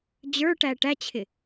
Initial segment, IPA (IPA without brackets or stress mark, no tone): d͡ʑ